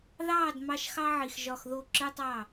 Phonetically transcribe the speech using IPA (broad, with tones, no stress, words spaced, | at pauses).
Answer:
ðɑː˦˨d mɑ˦ʃxɑ˦ʕi˨x ʒɒ˦˨xðo˦˨ ǁɯ˦tˤɑ˦˨